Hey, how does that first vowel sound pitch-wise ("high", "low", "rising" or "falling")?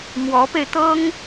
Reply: rising